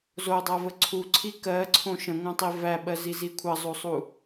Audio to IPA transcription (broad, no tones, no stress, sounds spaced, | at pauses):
z o dˤ æ v ə ǀʰ u ǀʰ i k ɜ ǀʰ õ ʃ ə̃ ŋʷ æ̃ tˤ i v æ ɓ ɜ z i z i kʷʰ ə zˤ o sˤ u